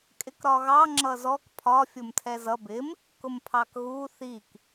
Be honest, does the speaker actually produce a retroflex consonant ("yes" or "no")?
no